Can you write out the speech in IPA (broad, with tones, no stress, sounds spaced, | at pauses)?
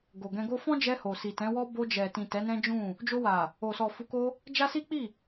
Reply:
ɡ o˨ ɡ ɛ̃˧ ɡ o˦ f ɔ̃˦ d͡ʒ ɛ˧ h o˨ s i˨ t ɛ̃˨˦ w ɔ˦ b o˧ d͡ʒ ɛ˨ t ĩ˨ t ɛ˨˦ n ɛ̃˦ d͡ʒ ũ˦˨ | d͡ʒ o˧ w a˨ | o˨ s ɔ˨ f u˨˦ k o˧ | d͡ʒ a˦ s i˦ k͡p i˦˨